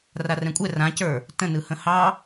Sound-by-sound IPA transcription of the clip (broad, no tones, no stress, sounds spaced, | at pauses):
r a r ɛ̃ kʷʼ ɛ r ã c ə˞ | t ə̃ n ɯ h ə̃ h ɑ